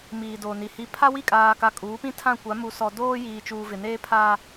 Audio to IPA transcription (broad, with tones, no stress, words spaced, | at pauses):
miː˨doː˨ni˨ hi˨pʰa˦wi˦˨ kʼaː˨ka˨ kʼuː˨˦pĩ˦tʰã˦˨ kʷa˨˦ mu˨sɔ˨ doː˦jiː˨t͡ʃuː˨ vɪ˨neː˦pʰa˦